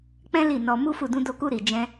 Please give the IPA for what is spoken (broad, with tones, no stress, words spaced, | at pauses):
k͡pɛ̃˦ li˦˨nɔ˧ mu˦fu˦˨ dũ˧do˧ku˧ ɾi˨ d͡ʒɛ̃˧